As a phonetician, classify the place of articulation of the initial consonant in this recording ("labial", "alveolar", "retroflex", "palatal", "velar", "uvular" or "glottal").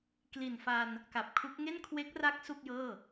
velar